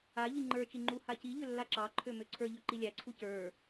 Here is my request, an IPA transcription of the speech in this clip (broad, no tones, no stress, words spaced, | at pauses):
aʎi ŋ͡ǃə˞t͡ʃi ŋ͡ǃuhaciʎø lːaǁɑǃʰø møǀʰə˞ʎø ǃilʲæǀʰu cə˞